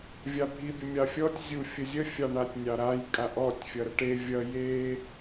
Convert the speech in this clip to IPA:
vʲ ɑ bʱ i bʲ ə mʲ ɑ fʲ ɔ tʲ zʲ u fʲ ə zʲ ə fʲ ɑ ɳ a tʲ nʲ ɑ ɾ a j kʼ a ʔ ɔ tʲ fʲ ʌ ɾ ə ʈ e vʲ ʌ j e

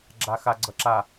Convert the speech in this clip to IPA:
ɡ͡ǁ a x a ɡ͡ǀ ʌ ǁ a

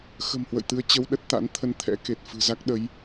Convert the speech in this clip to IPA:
x ə̤˨˩ m h w ə̰˧˨ j t̪ ɨ˧ ə̯ t͡ɕ ə˧ w ɗ ə˦˥ t̚ t̪ a̰˧˥ n t̪ʰ ə˧ n t̪ʰ ɛ̰˧˥ k e˨˩ t̚ f ɨ̤˨˩ z a˦˥ k̚ ɗ ə˨˦ j

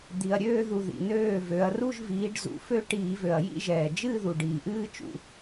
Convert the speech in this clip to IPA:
d̪ i˩ ɐ̯ ɾʲ øː˥˧ ð u˩ ð ḭ˩ n øː˥˩ v ø˩˧ ɐ̯ r u˥˧ ʒ v iː˩˧ ɖ z ṵ˩˧ f ø˥˧ ʈ iː˧˩˧ v ø˩ ɐ̯ j ḭ˥˧ ʒ ɛː˩ d͡ʒ ɨː˥˧ ð u˩ ɖ iː˩ ʔ ɨː˥˧ t͡ʃ ṵ˩

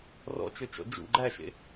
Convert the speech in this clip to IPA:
r ɔ̰ t͡ʃ ø t͡ʃ ɔ̰ d͡ʒ ṵ ɡ͡ǃ æ ʃ ḛ

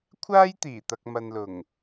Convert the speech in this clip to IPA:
kʷʰ aː˥ j t̪ iː˨˩ t̪ ɐ˨ k̚ m ɐ˨ n l ʊ˨˩ ŋ

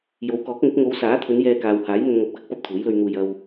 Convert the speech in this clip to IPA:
j o˨˧ w k ɔː˨˥ k̚ ŋ ɵ˨˥ t̚ ŋ o˨˧ w s aː˨˥ t̪ʰ ɵ˨˧ n j ɛː˧ k aː˨ w h aː˨˥ j n̪ ɵ˨ n ŋ ɐ˨ p̚ k ɐ˥ k̚ p ɐ˧ p̚ t̪ʰ uː˨˥ j l ɵ˧ ɥ n̪ uː˧ j ɐ˨ w

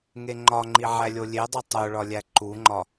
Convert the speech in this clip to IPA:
ŋ e ŋ͡ǃ ɒ ŋ͡ǃ i ʕ æ lʲ o lʲ e dˤ o tˤ o ɭ ɒ lʲ æ ǃ u ŋ͡ǃ ɒ

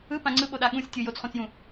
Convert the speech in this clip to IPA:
ɯ p ã ŋ͡ǀ ɯ ɓ o ɗ a ɠ ũ sʲ tʲ ɯ j o t͡s χ ũ t͡s j ũ

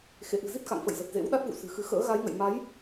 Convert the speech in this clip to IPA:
x ḛ˧˨ ʔ ɨ̤˨˩ z i˦˥ t̚ k a̰˧˨ ŋ f ə̰˧˨ j z ə˨˩ t̚ z ḛ˧˥ w ɗ a˦˥ t̚ v ṵ˧˨ s ɨ̤˨˩ x ɨ˧ x ə̰ː˧˥ ɣ a˨˦ j ŋ ə̰˧˨ j m a˨˦ j

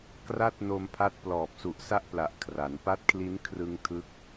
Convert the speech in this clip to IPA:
k r a˥˩ t̚ n o˧ m pʰ a˦˥ t̚ p l ɔː˨˩ p̚ s u˨˩ ʔ s a˦˥ ʔ p l a˨˩ ʔ kʰ r a˩˦ n p a˦˥ t̚ kʰ l i˦˥ n kʰ r ɯ˧ ŋ tʰ ɯ˦˥ k̚

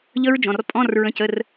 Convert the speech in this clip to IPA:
ʎ ə˦˥ ɹ d͡ʒ ɔ̃˩˧˩ r pʼ ɔ̃˧˥˧ r ɹ ə̃˧˥˧ c ə˧˥˧ r

